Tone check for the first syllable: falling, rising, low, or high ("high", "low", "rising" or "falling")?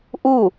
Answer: falling